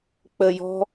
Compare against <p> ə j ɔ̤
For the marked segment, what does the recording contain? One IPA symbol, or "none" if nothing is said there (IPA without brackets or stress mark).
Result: k͡p